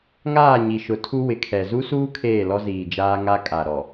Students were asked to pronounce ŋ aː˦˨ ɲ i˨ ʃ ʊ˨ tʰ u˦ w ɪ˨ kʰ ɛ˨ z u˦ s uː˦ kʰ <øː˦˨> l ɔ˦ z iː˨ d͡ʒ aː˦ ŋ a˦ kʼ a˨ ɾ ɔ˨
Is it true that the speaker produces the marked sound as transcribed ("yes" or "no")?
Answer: no